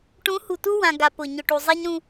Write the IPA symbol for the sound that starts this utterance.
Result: ʈ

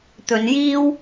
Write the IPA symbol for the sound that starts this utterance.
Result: t̪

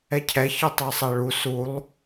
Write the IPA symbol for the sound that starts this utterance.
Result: ɛ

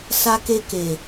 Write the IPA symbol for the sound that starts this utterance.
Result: s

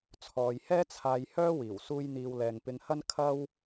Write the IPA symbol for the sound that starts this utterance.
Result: t͡sʰ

